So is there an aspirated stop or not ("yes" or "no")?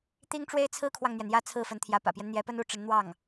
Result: yes